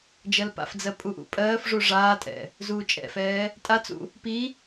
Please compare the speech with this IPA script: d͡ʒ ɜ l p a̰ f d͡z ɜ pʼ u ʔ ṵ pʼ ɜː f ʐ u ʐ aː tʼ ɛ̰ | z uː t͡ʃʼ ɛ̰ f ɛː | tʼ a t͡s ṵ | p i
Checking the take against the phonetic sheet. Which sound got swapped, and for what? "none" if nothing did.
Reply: none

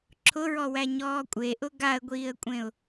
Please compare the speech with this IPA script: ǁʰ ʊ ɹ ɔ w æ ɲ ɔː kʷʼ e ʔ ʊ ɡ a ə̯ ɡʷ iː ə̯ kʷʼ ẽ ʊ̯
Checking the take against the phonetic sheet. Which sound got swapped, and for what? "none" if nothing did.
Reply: none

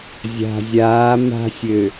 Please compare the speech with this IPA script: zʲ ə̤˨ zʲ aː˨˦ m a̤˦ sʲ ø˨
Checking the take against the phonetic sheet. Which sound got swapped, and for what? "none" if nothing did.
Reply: ə̤˨ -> a̤˨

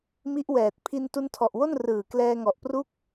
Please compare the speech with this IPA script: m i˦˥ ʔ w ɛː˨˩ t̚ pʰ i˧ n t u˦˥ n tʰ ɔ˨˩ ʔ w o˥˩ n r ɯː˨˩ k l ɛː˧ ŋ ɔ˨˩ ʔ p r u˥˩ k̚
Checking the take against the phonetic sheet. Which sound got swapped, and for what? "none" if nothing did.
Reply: none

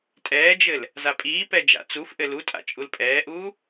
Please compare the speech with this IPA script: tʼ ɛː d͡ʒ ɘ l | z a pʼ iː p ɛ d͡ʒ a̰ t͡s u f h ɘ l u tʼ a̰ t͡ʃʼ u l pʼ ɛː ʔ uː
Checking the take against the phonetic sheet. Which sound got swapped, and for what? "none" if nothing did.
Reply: h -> ʔ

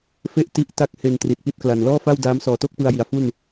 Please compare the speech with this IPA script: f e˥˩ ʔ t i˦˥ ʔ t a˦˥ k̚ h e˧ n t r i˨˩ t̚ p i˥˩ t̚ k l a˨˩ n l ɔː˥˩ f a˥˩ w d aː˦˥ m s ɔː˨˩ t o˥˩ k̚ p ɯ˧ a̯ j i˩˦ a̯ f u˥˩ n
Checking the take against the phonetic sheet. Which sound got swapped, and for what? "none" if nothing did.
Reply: none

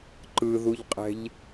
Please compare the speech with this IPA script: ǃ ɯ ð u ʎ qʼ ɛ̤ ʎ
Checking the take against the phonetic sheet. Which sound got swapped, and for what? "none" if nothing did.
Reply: none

